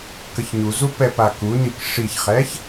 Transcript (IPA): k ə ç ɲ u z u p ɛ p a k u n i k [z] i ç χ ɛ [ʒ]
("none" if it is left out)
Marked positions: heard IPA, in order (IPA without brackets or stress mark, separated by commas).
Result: ʂ, ç